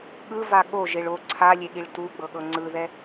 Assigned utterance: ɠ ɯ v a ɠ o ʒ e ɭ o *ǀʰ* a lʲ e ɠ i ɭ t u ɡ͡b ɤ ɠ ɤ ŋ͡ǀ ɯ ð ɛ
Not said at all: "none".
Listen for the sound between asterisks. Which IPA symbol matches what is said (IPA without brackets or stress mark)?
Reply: ǀʰ